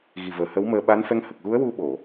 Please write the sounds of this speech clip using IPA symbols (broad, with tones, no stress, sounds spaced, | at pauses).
ɣ i˨˩ v əː˨˩ h ə˧˥ w m əː˧ ɓ a˧˥ n f ɛ˧˥ ŋ h ə˨˩ k̚ ɣ u˧˥ ə̯ w u˧ ɓ o˨˩˨